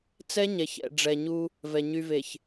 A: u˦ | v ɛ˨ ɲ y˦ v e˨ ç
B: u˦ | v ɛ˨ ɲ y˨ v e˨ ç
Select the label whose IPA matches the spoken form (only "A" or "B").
B